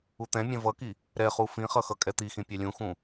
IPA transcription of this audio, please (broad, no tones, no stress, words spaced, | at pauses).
ut̪ɛ̃mʲɛ̃ vʌki | ɾɛχu fĩχʌ xʌkʼɛt̪ixĩ pʲɛlʲũxũ